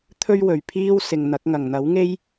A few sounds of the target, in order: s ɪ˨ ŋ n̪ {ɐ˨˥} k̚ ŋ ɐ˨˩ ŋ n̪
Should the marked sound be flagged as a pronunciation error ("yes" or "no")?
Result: no